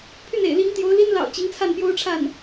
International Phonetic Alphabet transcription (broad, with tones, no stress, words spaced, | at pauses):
pʰy˥˩nḛ˨˩ɪ̯li˧˥ŋt̪jo˧˥ʊ̯ li˥nlɑ̰˨˩ʊ̯ t͡ɕi˧˥ŋt͡sʰa˥˩npjo˥ʊ̯ʈ͡ʂʰa˥˩n